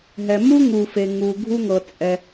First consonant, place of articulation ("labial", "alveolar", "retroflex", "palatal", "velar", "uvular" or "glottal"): glottal